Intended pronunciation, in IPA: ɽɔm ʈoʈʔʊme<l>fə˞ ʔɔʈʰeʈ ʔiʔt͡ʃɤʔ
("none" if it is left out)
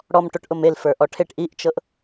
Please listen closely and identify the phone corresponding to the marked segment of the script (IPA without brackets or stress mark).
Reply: l